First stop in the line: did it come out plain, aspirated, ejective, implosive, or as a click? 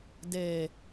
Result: plain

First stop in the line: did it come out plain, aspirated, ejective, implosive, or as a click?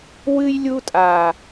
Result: ejective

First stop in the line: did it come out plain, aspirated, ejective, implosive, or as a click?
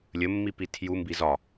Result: plain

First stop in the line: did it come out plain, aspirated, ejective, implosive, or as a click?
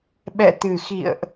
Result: implosive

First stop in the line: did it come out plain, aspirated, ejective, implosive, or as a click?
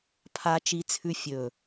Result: aspirated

